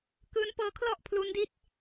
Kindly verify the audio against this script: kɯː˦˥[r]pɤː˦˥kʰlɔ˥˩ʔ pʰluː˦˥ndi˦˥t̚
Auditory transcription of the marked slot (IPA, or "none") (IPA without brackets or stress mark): n